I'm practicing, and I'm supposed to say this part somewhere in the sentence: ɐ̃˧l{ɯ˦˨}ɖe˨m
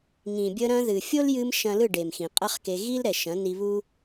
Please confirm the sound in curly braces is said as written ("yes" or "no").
yes